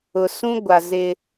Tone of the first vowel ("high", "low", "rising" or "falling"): low